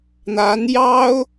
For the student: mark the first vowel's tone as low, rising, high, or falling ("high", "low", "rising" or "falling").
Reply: rising